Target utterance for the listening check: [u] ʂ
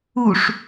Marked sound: correct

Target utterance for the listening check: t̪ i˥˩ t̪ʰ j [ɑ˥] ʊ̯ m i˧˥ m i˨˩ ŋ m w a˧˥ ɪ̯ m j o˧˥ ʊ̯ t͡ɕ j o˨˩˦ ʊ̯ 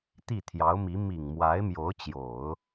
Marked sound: incorrect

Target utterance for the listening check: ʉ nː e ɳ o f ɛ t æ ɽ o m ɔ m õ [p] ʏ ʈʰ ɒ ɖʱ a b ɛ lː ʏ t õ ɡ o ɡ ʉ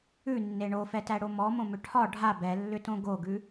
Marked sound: incorrect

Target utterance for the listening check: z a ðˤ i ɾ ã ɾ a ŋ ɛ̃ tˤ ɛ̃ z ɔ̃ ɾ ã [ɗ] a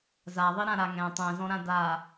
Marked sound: incorrect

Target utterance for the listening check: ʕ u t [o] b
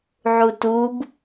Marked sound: incorrect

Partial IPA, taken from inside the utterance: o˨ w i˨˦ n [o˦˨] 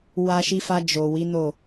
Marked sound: correct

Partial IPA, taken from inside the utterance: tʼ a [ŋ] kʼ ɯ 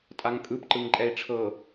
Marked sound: correct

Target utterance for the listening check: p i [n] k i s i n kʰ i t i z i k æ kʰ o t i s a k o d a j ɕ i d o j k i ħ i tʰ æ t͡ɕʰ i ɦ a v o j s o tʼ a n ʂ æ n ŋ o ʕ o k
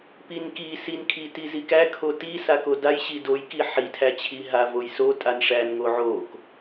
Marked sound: correct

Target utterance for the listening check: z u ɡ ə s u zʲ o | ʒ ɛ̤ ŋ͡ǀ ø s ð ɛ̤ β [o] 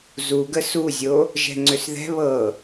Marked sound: incorrect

